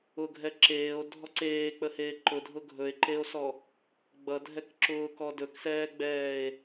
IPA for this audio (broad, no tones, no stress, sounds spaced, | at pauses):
ʊ ɡʱ ɛ ǁ eː o̯ dʱ ɔ ǀ eː k͡p ə h eː ǃ ʊ dʱ ʊ ɡʱ ɵ e̯ ǃ e o̯ s ɔ | ɡ͡b ʌ dʱ ɛ k ǁ ʊː k ɔ d ɵ k s ɛː ɡ͡b ɛː e̯